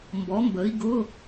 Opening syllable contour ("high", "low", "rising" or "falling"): rising